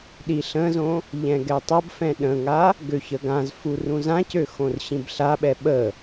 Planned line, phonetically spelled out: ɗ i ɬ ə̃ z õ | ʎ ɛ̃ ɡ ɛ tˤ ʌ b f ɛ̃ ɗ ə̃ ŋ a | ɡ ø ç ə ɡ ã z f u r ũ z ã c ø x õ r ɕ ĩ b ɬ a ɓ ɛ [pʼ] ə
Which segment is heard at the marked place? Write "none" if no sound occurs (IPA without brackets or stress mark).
ɓ